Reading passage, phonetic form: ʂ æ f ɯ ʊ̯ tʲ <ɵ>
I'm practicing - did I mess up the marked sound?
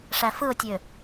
yes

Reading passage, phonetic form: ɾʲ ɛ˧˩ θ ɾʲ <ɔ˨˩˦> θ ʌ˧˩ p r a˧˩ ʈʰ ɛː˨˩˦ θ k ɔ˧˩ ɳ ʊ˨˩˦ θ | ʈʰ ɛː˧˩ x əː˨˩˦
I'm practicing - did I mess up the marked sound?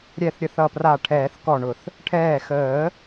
yes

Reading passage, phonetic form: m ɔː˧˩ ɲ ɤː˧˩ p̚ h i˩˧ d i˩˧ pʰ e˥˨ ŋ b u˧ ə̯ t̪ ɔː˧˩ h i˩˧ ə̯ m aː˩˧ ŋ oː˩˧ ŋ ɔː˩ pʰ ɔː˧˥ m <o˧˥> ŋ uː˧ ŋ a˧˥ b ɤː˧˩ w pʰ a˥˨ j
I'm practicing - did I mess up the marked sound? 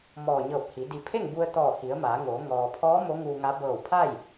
no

